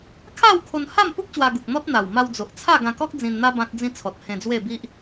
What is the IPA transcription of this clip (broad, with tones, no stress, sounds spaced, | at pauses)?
kʰ a˥˧ w kʰ o˧ n h a˥˧ m p u˦ k̚ ɕ w a˧ ɡ u˨ k̚ n̪ ɔ˦ t̚ n̪ a˨˩ w m a˧ w d͡z o˨ ʔ t͡sʰ a˥˧ ɡ ã˧ k ɔ˦ k̚ d͡z ĩ˧ n n̪ a˦ b ã˦ t̚ d͡z ĩ˦ t͡sʰ ɔ˨ t̚ h ẽ˧ d͡z w e˥˧ b i˦ ʔ